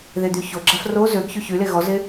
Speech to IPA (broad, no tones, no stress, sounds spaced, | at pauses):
ð e d̪ y ç o ɡ͡ǁ a f r o z ø ɡ ç y ç y l e ɣ ɔ z e